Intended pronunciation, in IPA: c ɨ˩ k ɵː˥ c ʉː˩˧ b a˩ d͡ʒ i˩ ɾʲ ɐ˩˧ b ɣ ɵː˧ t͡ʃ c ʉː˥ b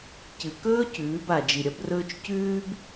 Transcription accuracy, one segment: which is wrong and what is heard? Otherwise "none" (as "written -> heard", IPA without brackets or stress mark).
ɣ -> r